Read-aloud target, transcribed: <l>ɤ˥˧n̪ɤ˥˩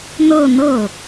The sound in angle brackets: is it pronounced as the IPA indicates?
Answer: no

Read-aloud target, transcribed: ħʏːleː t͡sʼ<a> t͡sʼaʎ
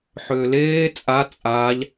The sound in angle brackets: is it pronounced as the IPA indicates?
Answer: yes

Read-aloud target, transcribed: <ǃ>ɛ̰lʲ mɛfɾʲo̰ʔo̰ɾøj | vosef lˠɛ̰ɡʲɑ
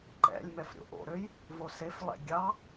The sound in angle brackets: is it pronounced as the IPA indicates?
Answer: yes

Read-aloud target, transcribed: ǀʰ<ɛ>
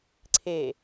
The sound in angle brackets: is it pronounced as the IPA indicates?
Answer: no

